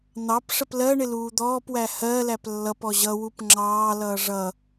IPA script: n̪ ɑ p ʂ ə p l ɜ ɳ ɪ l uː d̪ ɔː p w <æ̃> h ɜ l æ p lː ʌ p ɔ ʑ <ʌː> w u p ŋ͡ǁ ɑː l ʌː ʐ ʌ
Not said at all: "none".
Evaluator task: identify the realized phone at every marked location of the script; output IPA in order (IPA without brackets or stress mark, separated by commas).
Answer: æ, ʌ